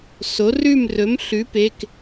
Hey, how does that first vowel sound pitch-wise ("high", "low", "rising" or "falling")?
rising